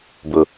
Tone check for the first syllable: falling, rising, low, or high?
low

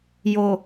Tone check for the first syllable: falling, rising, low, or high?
low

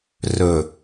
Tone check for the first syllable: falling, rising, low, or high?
low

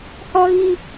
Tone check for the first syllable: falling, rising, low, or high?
high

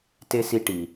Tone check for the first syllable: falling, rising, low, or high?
high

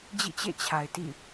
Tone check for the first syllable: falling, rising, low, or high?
falling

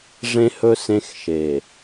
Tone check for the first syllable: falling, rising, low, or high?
high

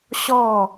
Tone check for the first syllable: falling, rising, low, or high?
falling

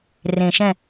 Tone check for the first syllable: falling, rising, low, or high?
low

